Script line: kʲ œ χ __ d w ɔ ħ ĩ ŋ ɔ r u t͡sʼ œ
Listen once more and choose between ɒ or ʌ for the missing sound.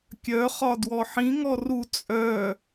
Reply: ɒ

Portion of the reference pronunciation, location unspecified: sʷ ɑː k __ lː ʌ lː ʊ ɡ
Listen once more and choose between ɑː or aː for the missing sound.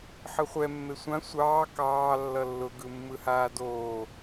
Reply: ɑː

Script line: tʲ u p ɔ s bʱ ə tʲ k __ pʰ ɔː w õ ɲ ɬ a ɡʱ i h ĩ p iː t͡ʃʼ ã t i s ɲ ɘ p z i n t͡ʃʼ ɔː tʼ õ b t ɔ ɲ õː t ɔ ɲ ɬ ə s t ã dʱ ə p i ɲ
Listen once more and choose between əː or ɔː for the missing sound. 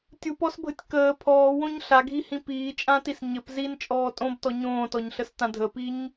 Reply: əː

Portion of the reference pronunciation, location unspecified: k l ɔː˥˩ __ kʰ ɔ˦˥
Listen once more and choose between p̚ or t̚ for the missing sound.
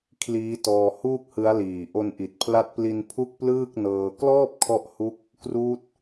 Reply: p̚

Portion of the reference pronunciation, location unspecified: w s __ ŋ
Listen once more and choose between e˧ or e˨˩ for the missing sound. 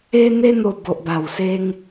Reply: e˧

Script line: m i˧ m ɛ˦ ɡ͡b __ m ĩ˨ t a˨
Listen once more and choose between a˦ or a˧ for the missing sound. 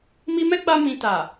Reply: a˧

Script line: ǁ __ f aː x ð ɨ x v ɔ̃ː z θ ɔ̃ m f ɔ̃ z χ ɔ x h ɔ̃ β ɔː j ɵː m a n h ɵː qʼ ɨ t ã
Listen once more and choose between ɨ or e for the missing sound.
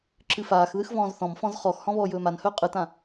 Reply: ɨ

